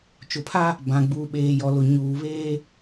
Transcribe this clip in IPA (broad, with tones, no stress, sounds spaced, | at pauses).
t͡ʃ ʊ˨ pʰ a˦ | b ã˨ ɡ͡b uː˨ ɓ eː˨ j ɔ˨ l ʊ˨ ɲ uː˨ β eː˦